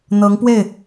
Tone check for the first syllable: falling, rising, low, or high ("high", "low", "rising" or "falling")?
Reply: rising